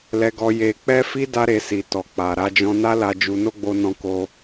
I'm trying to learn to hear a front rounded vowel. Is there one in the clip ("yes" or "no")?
no